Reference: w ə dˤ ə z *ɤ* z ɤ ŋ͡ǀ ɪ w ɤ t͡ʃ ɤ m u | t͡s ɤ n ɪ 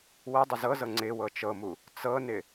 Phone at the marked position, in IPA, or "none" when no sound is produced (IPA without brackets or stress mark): ɤ